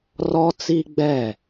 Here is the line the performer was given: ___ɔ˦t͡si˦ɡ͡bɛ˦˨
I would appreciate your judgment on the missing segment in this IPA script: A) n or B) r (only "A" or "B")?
B